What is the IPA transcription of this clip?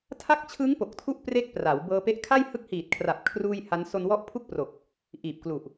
tʰ a˦˥ k̚ t͡ɕʰ ɯ˦˥ ŋ p o˨˩ k̚ tʰ u˥˩ ʔ p r e˥˩ k̚ p r a˩˦ w b ɤː˧ p e˦˥ ʔ kʰ a˥˩ j h ɯ˦˥ k̚ h iː˨˩ t̚ kʰ r a˨˩ p̚ kʰ r uː˥˩ j h a˦˥ n s o˧ n w ɔ˦˥ ʔ pʰ u˥˩ k̚ p r o˨˩ k̚ | ʔ iː˨˩ p̚ k l u˨˩ ʔ

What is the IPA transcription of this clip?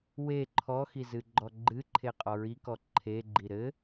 w e ǃʰ ɔ x i z ɨ ɡ͡ǃ ɔ ɡ͡ǃ ɨ ǃʰ e qʼ ɔ ɹ i k ɔ ǃʰ e ɡ͡ǃ i ɾ ɘ

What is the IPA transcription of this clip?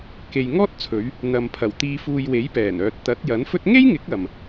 k e˨ j ŋ ɔː˥ t̚ t͡sʰ ɵ˨˧ ɥ | n̪ ɐ˨ m pʰ ɐ˨˩ w t̪ iː˨ f uː˨ j w e˨˥ j p ɛː˨˩ n œː˨ t̚ t̪ ɐ˨˥ t̚ j ɐ˨˥ n f ɵ˥ t̚ ŋ e˥ j ŋ ɪ˨˥ k̚ ɐ˨ m

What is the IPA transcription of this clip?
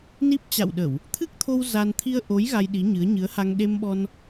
n i˦˥ p̚ t͡ɕ a̰˧˨ w ɗ ə˧˩˨ w | t̪ʰ ɨ˦˥ k̚ t̪ʰ o˧ w z a˧ n t̪ʰ i˧ ə̯ ʔ o˨˦ j ɣ a˧ j ɗ i˨˦ ɲ ɨ˨˦ ə̯ ɲ ɨ˨˦ ə̯ h a˧ ŋ ɗ e˧ m ɓ ɔ˧ n

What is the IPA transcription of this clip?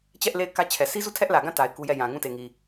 t͡ɕ ɛ˦ ʔ l e˦˨ ɪ̯ k ä˦ t͡ɕʰ ɛ˨ sʰ i˦ z u˦˨ tʰ ɛ˦ ʔ l ä˨ ɡ ã˦˨ t a˨ ɪ̯ k u˦ j ɛ˦˨ j ã˨ ŋ ũ˦˨ t e˨ ŋ i˨

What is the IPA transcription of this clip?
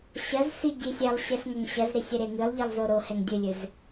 ɕ ɐ z s i ɟ i sʲ ɛ lˠ ɕ ɛ s ŋ ɐ ŋ ɕ ɐ z ɾ i sʲ e ɾ e ŋ ɨ lˠ ʎ i lˠ z o ɾ o h ɛ ŋ dʲ ɨ lʲ ɨ z

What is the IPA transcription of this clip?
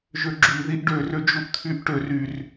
ʒ ø ɡ͡ǁ y ð i ʔ ɖ ø r ø d͡ʒ u ʔ t̪ʰ y ʔ ʈ ø r y r

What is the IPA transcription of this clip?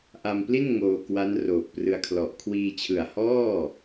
ʔ a˧ m p l i˥˩ n ŋ oː˧ k w a˦˥ n r oː˨˩ k̚ p r ɯ˧ a̯ kʰ l ɔ˨˩ ʔ kʰ w iː˧ t͡ɕʰ ɯ˨˩ a̯ h ɔː˥˩

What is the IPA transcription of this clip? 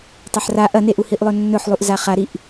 tˤ ɐ ħ r a ʔ ɐ n e ʔ u h i ʔ lˠ ɵ nː ɵ ħ lˠ u ʔ z a χ a ɾ i ʔ

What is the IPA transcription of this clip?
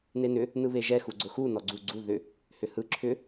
n e n ʏ | n ɯ β e ʒ ɛ x u ɡ͡ǀ ʊ x u n ɔ ɡ͡ǀ u ɡ͡ǀ u ð ʏ | h ʏ h ɯ ǁʰ ʏ

